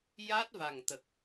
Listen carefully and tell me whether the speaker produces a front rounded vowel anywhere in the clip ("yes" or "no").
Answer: no